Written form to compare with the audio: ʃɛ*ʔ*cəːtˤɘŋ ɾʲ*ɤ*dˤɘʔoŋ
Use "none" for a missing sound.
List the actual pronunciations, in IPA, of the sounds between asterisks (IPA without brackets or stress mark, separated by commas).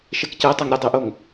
k, ɤ